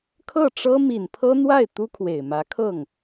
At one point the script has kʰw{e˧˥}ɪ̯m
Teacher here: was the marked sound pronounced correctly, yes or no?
no